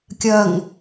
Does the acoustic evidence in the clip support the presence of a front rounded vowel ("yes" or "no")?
no